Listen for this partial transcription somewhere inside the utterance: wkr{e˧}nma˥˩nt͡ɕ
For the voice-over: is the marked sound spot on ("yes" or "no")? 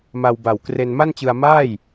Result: yes